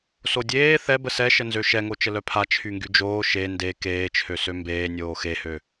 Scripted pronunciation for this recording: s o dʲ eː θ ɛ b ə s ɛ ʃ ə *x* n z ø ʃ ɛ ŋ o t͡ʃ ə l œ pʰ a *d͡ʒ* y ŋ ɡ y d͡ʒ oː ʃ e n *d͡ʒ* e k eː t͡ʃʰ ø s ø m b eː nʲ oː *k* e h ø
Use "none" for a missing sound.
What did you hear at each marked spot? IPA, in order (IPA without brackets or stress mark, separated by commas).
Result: none, t͡ʃʰ, d, x